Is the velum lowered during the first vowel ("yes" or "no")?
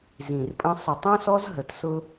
yes